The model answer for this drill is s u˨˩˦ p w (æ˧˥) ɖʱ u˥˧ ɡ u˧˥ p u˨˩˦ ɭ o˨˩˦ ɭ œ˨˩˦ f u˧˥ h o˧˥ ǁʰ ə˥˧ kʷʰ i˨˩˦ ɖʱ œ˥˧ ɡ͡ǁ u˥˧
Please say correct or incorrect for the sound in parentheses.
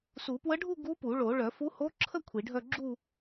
incorrect